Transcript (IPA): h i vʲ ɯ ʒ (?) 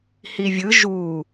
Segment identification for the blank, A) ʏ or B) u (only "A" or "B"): B